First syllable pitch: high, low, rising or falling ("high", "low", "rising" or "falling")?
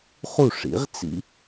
falling